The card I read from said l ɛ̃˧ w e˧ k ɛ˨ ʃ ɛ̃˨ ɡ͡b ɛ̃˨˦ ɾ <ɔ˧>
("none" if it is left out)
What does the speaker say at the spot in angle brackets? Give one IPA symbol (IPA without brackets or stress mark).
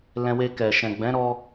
ɔ˧